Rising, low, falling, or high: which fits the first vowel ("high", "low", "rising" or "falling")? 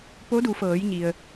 rising